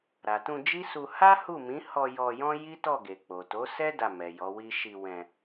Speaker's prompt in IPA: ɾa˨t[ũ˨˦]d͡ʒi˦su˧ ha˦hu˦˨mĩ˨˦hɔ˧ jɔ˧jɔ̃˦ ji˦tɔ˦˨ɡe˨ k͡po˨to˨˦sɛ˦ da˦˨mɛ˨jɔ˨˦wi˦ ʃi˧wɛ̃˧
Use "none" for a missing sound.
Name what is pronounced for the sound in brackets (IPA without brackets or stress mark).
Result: ũ˧